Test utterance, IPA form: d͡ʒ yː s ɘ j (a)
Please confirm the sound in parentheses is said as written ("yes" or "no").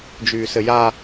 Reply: yes